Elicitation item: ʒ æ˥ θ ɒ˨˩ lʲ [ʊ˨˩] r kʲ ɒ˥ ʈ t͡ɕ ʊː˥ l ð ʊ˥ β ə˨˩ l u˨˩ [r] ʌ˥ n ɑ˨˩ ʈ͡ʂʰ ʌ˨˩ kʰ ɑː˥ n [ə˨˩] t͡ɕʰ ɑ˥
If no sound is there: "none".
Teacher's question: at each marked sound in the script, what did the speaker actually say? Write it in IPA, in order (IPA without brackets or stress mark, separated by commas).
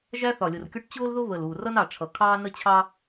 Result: ʊ˨˩, r, ə˥